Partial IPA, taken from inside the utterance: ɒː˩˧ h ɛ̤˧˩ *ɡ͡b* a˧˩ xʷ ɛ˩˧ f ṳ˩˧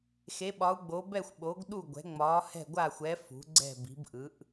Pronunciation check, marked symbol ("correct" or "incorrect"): incorrect